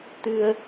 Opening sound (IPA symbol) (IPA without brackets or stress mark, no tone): t̪